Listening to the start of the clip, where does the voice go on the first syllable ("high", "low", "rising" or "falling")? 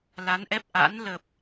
rising